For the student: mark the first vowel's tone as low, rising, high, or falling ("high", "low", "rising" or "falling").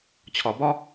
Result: low